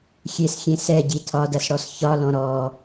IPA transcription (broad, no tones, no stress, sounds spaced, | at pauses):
xʲ e s xʲ ẽ s ɛ ɟ i tʰ ɒ d ɐ s ɽ ɔ s ç ɒ l ɔ̃ ɾ ɔ